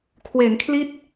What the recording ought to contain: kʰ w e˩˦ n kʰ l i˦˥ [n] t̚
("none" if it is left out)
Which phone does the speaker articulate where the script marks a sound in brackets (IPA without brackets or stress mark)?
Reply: none